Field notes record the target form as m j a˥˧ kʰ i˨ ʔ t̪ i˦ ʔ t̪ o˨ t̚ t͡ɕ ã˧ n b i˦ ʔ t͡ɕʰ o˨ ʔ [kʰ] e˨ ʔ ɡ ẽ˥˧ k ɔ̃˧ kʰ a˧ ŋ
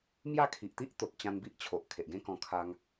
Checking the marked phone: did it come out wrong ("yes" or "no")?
no